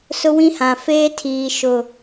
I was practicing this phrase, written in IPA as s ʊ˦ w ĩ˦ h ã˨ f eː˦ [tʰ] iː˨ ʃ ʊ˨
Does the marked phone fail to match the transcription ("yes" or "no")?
no